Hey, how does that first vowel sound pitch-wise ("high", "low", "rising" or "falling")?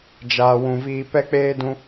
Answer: low